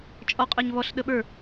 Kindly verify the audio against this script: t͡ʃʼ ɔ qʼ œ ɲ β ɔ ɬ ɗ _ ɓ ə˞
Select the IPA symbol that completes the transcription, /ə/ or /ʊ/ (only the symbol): ə